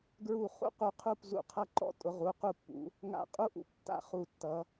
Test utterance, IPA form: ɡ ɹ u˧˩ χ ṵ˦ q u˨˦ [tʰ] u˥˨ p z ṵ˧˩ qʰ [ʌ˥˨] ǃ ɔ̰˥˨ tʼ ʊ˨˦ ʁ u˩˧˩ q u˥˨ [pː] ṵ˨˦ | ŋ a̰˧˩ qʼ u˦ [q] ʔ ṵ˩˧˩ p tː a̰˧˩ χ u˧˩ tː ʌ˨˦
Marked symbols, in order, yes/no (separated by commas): no, yes, yes, no